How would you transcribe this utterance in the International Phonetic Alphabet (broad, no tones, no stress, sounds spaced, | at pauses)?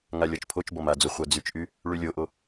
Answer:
ŋ a lʲ ɔ t͡ʃ pʰ o t͡ʃ b ɔ m a d͡z o χʷ a d͡z y t͡ʃ ʔ y | ɭ y lʲ o ʔ o